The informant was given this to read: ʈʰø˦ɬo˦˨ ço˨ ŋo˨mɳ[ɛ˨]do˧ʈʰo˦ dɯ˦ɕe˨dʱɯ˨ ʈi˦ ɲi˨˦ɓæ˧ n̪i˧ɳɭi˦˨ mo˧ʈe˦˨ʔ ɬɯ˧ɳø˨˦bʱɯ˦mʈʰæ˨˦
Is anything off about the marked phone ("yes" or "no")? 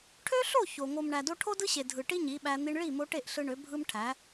yes